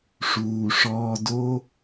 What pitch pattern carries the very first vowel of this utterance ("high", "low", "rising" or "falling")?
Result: low